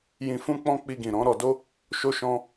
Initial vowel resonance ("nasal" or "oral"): nasal